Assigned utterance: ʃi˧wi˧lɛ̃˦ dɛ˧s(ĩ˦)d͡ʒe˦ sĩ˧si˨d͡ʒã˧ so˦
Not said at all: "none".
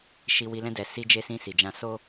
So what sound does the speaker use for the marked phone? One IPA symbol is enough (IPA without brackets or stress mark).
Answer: i˦